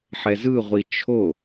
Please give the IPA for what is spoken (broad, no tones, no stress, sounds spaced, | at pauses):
ħ ɛ z ɯ ʁʷ i t͡ʃʰ o